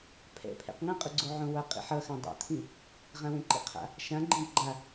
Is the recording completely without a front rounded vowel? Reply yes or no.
yes